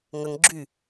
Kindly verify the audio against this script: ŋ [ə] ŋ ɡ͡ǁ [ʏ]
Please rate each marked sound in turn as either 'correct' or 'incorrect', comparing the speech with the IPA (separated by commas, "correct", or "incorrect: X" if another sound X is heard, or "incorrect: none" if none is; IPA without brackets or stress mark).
correct, incorrect: y